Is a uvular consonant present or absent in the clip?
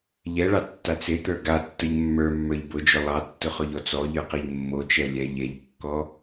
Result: present